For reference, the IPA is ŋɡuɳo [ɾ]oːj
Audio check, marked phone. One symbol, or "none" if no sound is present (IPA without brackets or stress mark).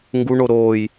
ɾ